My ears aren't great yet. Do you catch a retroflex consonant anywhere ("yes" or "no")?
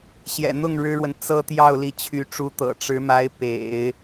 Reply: yes